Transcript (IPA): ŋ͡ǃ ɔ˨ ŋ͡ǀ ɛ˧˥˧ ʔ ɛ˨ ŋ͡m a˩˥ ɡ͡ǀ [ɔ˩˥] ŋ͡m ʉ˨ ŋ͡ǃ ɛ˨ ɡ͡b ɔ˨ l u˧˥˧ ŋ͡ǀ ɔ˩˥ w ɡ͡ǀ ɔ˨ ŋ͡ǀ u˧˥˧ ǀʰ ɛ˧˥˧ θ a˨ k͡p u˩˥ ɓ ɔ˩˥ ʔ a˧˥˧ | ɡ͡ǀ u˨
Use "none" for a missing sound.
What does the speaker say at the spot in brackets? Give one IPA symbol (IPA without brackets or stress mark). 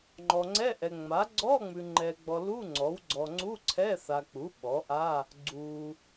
ɔ˧˥˧